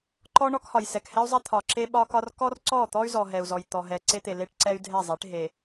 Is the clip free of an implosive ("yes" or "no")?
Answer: no